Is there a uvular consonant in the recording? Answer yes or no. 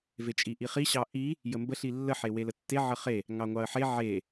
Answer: yes